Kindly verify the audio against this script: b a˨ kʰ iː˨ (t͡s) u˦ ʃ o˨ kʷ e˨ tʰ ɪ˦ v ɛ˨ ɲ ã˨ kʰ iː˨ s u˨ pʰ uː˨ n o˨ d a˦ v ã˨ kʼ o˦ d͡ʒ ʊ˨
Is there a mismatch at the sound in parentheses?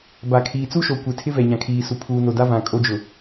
no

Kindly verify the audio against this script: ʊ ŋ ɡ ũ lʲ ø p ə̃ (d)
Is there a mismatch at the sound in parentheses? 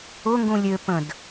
no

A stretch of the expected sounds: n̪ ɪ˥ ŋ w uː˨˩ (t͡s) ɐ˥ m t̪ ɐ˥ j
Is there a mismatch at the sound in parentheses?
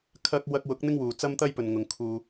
no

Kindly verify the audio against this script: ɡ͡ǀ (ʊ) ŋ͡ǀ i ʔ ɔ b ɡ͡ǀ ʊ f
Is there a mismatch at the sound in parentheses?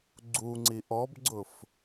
yes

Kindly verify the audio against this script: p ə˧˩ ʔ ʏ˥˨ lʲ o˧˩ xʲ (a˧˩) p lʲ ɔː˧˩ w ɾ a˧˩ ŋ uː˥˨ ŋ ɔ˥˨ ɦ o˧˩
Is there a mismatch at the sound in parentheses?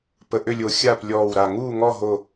yes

